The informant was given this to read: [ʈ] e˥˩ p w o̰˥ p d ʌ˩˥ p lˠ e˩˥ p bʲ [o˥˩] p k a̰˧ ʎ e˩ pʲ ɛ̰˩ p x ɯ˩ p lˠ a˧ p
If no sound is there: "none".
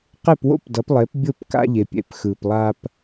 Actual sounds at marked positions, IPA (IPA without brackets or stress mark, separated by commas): q, o˥˩